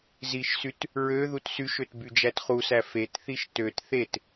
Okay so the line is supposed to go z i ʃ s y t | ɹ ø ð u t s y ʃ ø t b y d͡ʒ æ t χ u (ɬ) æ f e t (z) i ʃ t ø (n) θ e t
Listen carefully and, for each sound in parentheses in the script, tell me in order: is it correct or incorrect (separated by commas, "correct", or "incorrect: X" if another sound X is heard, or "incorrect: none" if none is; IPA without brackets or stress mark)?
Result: incorrect: s, incorrect: θ, incorrect: t